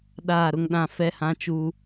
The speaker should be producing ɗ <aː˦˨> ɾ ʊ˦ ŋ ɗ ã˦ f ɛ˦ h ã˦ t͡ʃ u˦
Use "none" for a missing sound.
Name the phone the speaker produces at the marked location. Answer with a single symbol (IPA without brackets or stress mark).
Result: aː˦˨